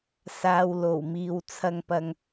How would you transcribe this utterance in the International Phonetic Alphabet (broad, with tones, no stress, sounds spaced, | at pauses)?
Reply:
s aː˨ w l o˨˩ w m iː˨ w t͡sʰ ɐ˧ ŋ p ɐ˧ ŋ